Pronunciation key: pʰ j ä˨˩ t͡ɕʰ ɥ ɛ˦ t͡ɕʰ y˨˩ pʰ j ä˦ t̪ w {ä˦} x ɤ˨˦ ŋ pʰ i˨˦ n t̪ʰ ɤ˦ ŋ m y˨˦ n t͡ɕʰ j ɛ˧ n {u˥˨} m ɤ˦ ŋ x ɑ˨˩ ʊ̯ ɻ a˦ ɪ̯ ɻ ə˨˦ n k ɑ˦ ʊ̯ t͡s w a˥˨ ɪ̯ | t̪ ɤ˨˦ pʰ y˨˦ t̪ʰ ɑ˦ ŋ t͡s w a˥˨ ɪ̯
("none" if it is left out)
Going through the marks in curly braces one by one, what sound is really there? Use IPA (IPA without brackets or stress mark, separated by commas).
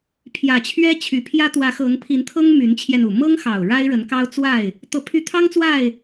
ä˨˦, u˨˩